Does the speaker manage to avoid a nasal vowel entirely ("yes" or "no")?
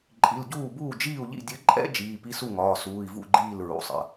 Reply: yes